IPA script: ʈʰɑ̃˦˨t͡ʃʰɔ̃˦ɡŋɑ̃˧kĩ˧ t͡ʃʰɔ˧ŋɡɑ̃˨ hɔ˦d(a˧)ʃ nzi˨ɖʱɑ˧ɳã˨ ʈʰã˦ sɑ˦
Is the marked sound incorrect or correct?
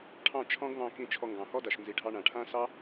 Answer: incorrect